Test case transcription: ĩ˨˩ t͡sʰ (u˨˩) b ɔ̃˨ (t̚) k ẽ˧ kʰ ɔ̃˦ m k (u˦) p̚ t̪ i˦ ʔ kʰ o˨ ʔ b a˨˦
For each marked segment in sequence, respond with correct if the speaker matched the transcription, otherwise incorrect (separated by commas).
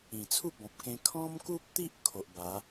incorrect, incorrect, correct